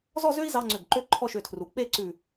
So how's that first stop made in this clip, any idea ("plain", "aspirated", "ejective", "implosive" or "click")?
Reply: click